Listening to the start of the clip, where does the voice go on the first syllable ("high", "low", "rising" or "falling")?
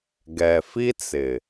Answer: low